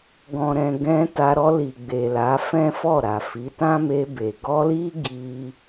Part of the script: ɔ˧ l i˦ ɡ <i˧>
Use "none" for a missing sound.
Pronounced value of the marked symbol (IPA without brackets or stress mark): i˧